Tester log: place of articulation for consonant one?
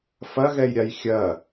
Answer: labial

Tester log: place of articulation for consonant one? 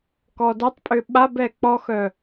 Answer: velar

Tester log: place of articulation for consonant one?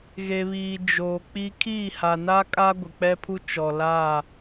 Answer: velar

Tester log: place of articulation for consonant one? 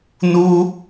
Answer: alveolar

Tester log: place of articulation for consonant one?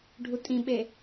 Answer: retroflex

